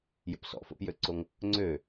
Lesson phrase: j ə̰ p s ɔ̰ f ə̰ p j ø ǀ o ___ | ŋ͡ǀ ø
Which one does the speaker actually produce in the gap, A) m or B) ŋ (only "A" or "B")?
B